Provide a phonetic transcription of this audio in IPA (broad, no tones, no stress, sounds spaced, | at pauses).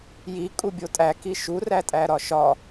j i kʼ u bʲ o tʼ æ k i ʃ u r æ tʼ æ ɾ ɒ ʃ ɒ